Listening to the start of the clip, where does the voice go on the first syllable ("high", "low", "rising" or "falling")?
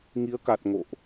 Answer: rising